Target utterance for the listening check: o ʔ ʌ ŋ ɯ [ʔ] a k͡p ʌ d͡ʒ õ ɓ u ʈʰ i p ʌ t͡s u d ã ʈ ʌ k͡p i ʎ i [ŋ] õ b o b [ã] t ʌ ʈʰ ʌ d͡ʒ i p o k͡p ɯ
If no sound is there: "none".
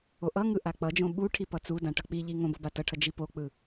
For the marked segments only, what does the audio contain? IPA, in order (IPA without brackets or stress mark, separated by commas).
ʔ, ŋ, a